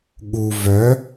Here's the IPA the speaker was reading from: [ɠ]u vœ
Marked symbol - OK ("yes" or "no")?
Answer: yes